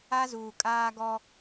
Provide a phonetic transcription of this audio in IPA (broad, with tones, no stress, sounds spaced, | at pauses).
a˦ z uː˨ kʼ aː˦ ɡ ɔ˦